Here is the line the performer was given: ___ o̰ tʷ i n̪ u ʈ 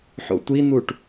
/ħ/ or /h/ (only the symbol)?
ħ